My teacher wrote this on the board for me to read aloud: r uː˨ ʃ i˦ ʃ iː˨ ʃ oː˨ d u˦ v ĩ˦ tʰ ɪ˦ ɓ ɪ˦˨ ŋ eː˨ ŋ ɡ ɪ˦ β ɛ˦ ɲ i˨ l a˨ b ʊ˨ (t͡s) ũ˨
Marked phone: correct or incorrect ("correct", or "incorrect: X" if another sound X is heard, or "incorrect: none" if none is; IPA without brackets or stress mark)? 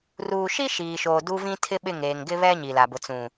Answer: correct